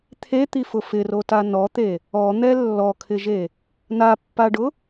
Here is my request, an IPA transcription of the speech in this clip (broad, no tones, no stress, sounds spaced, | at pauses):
t̪ʰ e t̪ i f ʊ f ɪ r o t a n ɔ t̪ e | ɔ n̪ ɛ lː ɔ kʰ ɪ ʒ e | n a pː a ɖ ʊ